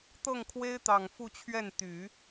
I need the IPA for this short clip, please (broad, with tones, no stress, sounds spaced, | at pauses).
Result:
t̪ ɤ˥˩ ŋ kʰ w e˥ ɪ̯ t̪ ɑ˨˩ ŋ f u˥˧ t͡ɕʰ ɥ ɛ˥˩ n t̪ y˨˩˦